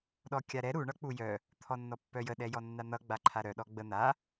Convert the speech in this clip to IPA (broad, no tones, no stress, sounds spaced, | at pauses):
ɗ ɔ kʲ a ɾ ɛ ɾ u ɳ ʌ k͡p u j œ | t̪ʰ ɔ nː ɔ pː œ j ə ɗ ɛ j ɔ nː a n̪ ʌ ɡ͡b a ǃʰ a ɾ œ ɗ ɔ ɡ͡b ə n̪ a